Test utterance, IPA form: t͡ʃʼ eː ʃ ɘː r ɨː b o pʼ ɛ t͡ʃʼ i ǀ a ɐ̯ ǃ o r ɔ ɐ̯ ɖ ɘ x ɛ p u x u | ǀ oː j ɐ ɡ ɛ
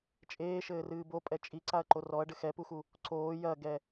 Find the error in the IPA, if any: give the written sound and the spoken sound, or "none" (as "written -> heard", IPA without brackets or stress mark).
none